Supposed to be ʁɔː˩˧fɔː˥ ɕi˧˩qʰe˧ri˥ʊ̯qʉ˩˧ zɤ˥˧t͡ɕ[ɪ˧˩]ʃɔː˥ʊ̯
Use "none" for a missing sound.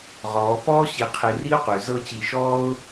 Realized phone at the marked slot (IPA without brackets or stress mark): i˧˩